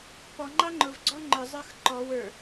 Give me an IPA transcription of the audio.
p ɔ ŋ͡ǃ ɑ ŋ͡ǃ ʊ v ɡ͡ǀ ɔ ŋ͡ǃ ə˞ zˤ ə˞ x ǃ ɔ w ə˞

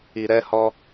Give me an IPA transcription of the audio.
i˨ ɾ ɛ˧ h ɔ˧

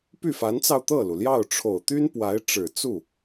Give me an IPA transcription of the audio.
p y˥˩ f a˧˥ n t͡s ɑ˧ ʊ̯ t̪ ɤ˥˩ l u˩ l j ɑ˥˩ ʊ̯ ʈ͡ʂʰ o˨˩ ʊ̯ t̪ y˥ n p w a˧˥ ɪ̯ ʈ͡ʂ ɻ̩˨˩ t͡s u˥˩

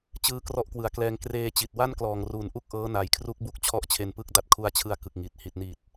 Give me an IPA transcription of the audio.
t͡ɕ ɯː˧ k r ɔ˥˩ ʔ k w ɯ˨˩ a̯ k l ɛː˧ ŋ k r eː˧ t͡ɕ i˨˩ t̚ w a˥˩ n k l ɔː˨˩ ŋ r uː˩˦ n ʔ u˥˩ k̚ ʔ ɤː˦˥ n a˨˩ j kʰ r u˦˥ k̚ b u˦˥ k̚ t͡ɕʰ ɔ˥˩ ʔ t͡ɕʰ e˧ n p ɯ˥˩ k̚ d a˦˥ t̚ kʰ u˧ a̯ t͡ɕʰ ɯ˧ a̯ k ɯ˨˩ k̚ ŋ i˨˩ t̚ h i˨˩ t̚ n i˨˩ t̚

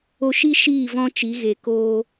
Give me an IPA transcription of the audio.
o˧ ʃ i˦ ʃ iː˦˨ v ɔ̃˦ t͡ʃ i˨˦ ɣ e˨ k oː˧

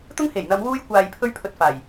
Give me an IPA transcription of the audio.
t̪ ʊ˥ ŋ h e˨˩ j n̪ ɐ˨˧ m w uː˧ j kʷ aː˨ j pʰ ɵ˥ ɥ pʰ ɵ˧ t̚ f aː˨˩ j

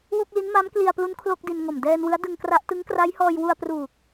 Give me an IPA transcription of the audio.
w o˥˩ k̚ l i˦˥ n m a˦˥ m k l i˧ a̯ p l u˦˥ n kʰ l o˥˩ k̚ d i˧ n ŋ o˨˩ m d ɛː˧ n w ɯ˦˥ a̯ d ɯ˧ ŋ k r a˦˥ ʔ t ɯ˦˥ ŋ k r a˦˥ j h ɔː˧ j w u˧ a̯ p r uː˨˩ k̚

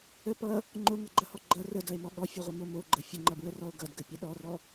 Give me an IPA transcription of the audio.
ə p ʌ | ŋ͡ǃ o ŋ ʌ ɡ͡ǃ ʌ h ɔ ɡ͡ǃ ʌ r ə d ʌ e̯ m ɔ ɠ ɔ fʲ ʌ ʁʷ ə m o m o ɡ͡ǃ ə fʲ ə ŋ͡ǃ ʌ b ɹ ə r ɔ o̯ ɡ ʌ d ɡ ə pʲ ə ɗ ɔ r ɔ

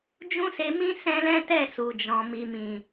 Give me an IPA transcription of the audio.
d͡ʒ ũ˦ s e˧ m ĩ˦ s ɛ̃˦ l ɛ̃˦ t ɛ˦˨ s u˨ d͡ʒ ɔ̃˨ m i˨ m ĩ˨

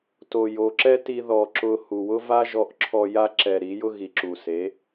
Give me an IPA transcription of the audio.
t o˨ j o˨ ǁ ɛ˦ t i˧ ð ɔ˨ ǁ ʊ˧ h u˨ w ʊ˦ v a˦ ʒ ɔ˧ ʔ ǁʰ ɔ˧ j a˦ ǁ ɛ˨ ɾ i˨˦ j ʊ˦ ɣ i˨ ǁ u˨ s e˨˦

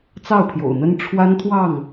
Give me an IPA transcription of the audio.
t͡s ɑ˥˨ ʊ̯ pʰ j o̰˨˩ ʊ̯ n̪ ə˦ n ʈ͡ʂʰ w a˦ n t̪ʰ w ɑ˥˨ ŋ

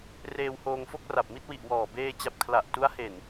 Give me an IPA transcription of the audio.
r eː˧ w h oː˧ ŋ f o˥˩ k̚ r a˨˩ p̚ m i˥˩ t̚ w i˨˩ ʔ w ɔː˨˩ b eː˧ t͡ɕ a˨˩ p̚ kʰ l a˨˩ ʔ t u˦˥ a̯ h e˨˩ n

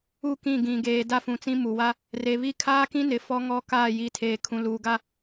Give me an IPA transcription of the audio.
u˦˨ k ĩ˦˨ ɡ ĩ˨ ɡ eː˨ d a˦ f ũ˨ t͡s ĩ˦ m u˨ w a˦ | r e˨ β i˦ kʰ aː˦ k ĩ˦ n ɪ˨ f ɔ˦ ŋ ɔ˦ k aː˦˨ j i˨ tʰ eː˨ kʰ ũ˨ l uː˨ ɡ a˦

